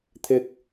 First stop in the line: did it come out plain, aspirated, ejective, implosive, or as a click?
aspirated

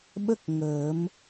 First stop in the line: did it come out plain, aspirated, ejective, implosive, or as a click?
implosive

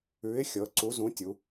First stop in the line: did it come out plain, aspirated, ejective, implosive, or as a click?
click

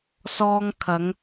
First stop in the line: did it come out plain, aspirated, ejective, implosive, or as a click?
aspirated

